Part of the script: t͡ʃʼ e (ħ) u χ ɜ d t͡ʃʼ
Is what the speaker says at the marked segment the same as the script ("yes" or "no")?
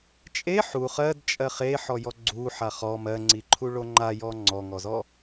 yes